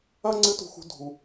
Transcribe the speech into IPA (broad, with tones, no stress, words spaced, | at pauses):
ɐ˥ ŋ͡ǀɨ˧˥ tṳ˧˥xṳ˧˥ dʱu˧